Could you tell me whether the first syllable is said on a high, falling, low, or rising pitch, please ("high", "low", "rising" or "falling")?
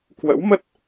rising